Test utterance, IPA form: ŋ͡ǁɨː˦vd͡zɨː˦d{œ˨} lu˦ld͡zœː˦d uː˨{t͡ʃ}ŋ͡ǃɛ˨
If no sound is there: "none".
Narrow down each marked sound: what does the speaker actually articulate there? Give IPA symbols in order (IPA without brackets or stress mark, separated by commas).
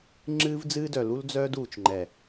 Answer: œ˨, t͡ʃ